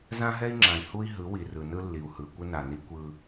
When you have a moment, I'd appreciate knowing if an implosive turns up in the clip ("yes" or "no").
no